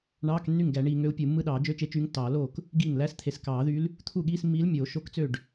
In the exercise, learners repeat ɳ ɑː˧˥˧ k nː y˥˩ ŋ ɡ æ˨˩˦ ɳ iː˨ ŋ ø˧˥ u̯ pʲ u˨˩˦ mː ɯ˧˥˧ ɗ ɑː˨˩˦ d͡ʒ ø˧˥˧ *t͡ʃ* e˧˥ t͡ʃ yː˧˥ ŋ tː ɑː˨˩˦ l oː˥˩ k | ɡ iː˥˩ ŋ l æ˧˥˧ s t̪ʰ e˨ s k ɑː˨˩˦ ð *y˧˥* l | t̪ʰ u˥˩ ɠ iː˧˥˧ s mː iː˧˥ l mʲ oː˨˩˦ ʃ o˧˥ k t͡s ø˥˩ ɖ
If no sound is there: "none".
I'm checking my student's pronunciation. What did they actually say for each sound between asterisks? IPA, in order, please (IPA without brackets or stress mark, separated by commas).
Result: t͡ʃ, y˧˥